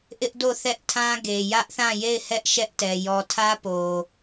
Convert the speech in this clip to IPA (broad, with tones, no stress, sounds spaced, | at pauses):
ʔ ɪ˦ ʔ d o˦˨ θ ɛ˦ ʔ tʰ ã˦ ɡ e˨ j ä˦ ʔ θ ã˦˨ j e˦˨ ɪ̯ h ɛ˦ ʔ ʃ ɛ˦ ʔ t ɛ˨ j ɔ˨ tʰ ä˦ p o˨